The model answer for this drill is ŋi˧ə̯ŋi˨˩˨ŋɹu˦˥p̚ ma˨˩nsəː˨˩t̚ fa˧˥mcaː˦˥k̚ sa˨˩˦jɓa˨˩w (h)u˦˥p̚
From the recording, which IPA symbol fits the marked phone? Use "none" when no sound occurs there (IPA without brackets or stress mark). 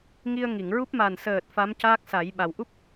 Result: ʔ